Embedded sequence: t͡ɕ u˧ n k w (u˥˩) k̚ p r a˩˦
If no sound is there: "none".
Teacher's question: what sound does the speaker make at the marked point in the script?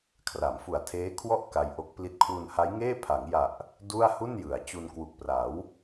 u˨˩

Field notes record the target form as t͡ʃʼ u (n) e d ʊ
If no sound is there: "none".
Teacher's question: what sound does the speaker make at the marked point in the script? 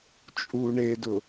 ɳ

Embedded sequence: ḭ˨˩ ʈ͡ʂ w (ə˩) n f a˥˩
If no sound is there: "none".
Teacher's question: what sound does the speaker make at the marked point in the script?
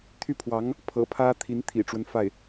ə˦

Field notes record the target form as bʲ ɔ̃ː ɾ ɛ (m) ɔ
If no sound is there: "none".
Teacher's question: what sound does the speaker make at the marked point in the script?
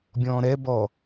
b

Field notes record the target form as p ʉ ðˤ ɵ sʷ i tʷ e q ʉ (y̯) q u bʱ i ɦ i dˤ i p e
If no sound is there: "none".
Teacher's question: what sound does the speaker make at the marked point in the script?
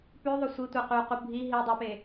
u̯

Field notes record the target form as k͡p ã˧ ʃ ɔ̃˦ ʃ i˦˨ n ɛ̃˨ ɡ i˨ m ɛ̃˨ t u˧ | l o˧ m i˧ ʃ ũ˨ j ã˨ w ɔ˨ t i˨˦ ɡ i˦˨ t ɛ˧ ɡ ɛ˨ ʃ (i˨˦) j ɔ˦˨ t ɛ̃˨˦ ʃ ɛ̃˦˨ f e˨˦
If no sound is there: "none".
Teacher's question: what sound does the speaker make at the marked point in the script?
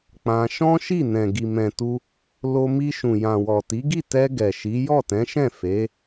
i˨˦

